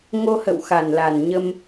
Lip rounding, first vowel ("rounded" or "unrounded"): rounded